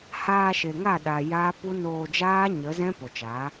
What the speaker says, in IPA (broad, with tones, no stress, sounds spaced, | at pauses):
h aː˧ ʃ e˨ ŋ a˦˨ ɗ a˨ j aː˦ p u˦ n oː˧ d͡ʒ aː˦ ɲ ə˨˦ z ɛ̃˦ p o˨ t͡ʃ aː˨˦